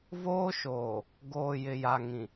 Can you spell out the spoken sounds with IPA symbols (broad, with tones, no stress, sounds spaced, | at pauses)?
v oː˦ ʃ oː˨ | ɡ oː˨ j ɪ˨ j a˨ ŋ ĩ˨